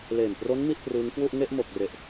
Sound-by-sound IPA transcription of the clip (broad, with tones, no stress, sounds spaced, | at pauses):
l eː˨˩ m p r o˦˥ n m i˥˩ ʔ p r ɯː˦˥ ŋ k w u˥˩ ʔ ŋ e˥˩ ʔ m o˨˩ k̚ r e˨˩ ʔ